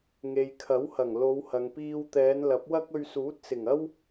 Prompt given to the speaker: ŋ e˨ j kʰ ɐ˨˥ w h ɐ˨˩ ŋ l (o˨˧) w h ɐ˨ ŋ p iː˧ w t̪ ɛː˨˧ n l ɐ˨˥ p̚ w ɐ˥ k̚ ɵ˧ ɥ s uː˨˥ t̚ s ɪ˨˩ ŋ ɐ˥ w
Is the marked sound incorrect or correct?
correct